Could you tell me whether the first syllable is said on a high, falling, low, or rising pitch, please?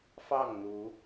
falling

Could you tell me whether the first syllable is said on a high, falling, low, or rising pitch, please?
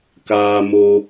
high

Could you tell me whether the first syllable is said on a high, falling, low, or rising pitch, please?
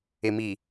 low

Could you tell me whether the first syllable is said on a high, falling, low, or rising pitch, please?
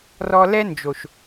high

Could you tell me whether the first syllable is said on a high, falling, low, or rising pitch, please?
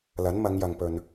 rising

